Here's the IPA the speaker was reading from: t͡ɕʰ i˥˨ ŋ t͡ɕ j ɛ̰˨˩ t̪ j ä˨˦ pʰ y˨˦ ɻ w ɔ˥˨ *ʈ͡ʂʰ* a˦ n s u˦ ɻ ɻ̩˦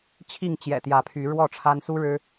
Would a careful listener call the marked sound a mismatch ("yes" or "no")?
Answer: no